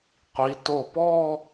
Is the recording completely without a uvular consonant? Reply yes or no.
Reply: no